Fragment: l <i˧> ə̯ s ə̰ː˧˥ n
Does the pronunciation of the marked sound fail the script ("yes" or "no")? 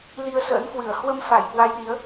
no